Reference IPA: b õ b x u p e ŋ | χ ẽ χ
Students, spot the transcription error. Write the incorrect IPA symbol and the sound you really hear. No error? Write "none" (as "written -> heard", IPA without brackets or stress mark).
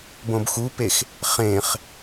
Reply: ŋ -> x